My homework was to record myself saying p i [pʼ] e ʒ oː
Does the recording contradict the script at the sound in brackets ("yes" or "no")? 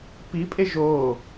no